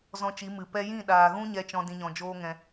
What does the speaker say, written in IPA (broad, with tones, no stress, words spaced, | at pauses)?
zɔ̃˧t͡ʃi˨˦mɨ˨ pɛ˧jĩ˦˨ɗaː˨ɣũ˦ ɲɛ˦t͡ʃɔ̃˦ dĩ˦ɲɔ̃˧ d͡ʒoː˦ŋɛ̃˧